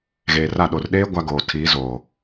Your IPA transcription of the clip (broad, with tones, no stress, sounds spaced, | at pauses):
ɣ eː˨ r a˦˨ ɗ o˨ r ɗ eː˦ ɡʷ a˦ ɡ oː˨ tʰ iː˨˦ z oː˨